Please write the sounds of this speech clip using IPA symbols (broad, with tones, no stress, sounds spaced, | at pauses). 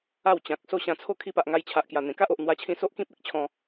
a˥˧ w t͡ɕ ã˨ k̚ s o˥˧ ɕ ã˧ t͡sʰ o˥˧ kʰ i˧ p a˨ ʔ ŋ a˧ j t͡ɕʰ a˨ ʔ k j a˨˩ n̪ ẽ˨˩ k a˦ ʔ o˨ ʔ n̪ w a˧ t͡ɕʰ ĩ˧ s o˦ ʔ k ĩ˦ p̚ e˦ k̚ t͡ɕʰ ɔ̃˧